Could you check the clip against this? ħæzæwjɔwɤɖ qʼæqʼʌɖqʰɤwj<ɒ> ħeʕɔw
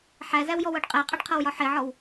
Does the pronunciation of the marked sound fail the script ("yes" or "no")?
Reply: no